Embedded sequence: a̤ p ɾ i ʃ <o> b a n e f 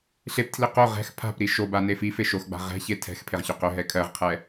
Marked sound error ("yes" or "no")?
no